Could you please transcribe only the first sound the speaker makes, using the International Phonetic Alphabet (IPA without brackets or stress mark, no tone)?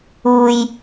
uː